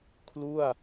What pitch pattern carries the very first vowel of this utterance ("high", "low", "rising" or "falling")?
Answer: falling